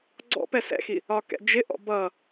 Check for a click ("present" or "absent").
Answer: present